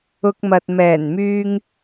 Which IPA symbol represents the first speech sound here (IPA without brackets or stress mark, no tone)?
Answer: ʊ